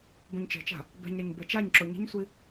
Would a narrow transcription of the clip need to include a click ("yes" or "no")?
yes